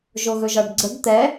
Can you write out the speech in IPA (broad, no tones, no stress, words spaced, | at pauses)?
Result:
ʒoɣɵʒɒɖɡ͡ǀəɡ t̪ɛ